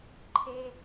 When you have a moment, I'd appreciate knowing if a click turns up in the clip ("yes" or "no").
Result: yes